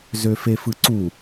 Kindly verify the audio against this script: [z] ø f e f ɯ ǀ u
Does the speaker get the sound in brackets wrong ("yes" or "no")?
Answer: no